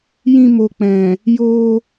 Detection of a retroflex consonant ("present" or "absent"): absent